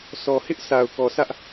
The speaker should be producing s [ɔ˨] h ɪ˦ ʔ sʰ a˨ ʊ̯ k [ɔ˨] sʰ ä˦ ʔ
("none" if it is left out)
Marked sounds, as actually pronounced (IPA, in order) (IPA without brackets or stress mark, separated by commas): ɔ˨, ɔ˨